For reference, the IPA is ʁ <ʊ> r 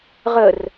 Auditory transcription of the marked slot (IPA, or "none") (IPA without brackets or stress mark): ə